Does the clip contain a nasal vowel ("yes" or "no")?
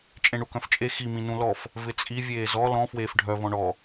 yes